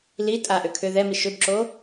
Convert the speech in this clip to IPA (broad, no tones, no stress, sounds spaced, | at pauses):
l i tʼ a ʔ ø kʰ ʏ ð ɛ m i ʃ ʏ b ǁ o